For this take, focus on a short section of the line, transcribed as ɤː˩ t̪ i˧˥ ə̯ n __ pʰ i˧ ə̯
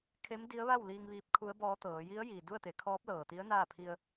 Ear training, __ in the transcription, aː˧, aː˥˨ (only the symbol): aː˥˨